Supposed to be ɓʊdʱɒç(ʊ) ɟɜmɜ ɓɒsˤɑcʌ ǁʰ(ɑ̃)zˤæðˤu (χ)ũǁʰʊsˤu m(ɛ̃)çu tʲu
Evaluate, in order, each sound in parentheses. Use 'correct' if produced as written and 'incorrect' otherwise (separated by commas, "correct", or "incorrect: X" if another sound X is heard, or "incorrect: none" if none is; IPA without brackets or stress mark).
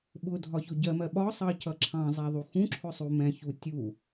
correct, correct, incorrect: x, correct